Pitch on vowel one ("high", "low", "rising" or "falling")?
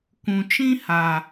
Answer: low